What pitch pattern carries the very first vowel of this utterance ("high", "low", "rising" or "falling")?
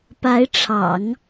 rising